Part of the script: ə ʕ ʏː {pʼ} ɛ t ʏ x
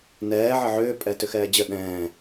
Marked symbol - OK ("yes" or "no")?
yes